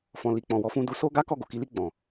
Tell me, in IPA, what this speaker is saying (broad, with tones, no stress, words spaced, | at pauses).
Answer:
fɔ̃˨li˨k͡pɔ̃˨ wɔ˨˦fũ˧du˧ so˦ɡa˦ kɔ˦˨ɡo˨ki˨˦li˦˨ ɡ͡bɔ̃˨